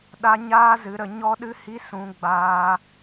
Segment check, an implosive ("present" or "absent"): present